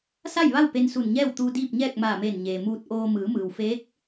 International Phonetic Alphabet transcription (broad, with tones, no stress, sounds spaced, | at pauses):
s a˥˨ j ʋ a˥˨ w p e˧ n s u˧˩ n ɲ ɛː˥˨ w t̪ uː˧ d iː˥˨ p̚ ɲ ɛː˥˨ k̚ m aː˧˩ m eː˧˩ n ɲ eː˩ m uː˧ t̚ ʔ oː˧ m ɯː˩˧ m ɯː˩ w f eː˧˥ k̚